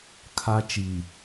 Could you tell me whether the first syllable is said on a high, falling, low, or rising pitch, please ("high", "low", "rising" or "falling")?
high